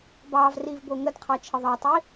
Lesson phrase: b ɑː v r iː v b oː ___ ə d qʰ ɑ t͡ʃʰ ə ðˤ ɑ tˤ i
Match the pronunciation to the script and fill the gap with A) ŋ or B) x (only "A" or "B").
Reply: A